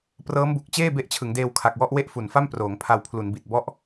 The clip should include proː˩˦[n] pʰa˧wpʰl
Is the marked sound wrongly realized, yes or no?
yes